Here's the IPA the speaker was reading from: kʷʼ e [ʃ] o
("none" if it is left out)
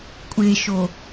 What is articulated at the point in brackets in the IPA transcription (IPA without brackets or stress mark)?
ʃ